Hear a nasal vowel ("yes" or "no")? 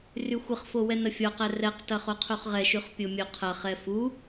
no